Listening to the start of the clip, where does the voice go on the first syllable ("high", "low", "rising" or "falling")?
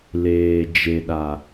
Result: low